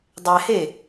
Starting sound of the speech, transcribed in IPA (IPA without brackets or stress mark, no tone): dˤ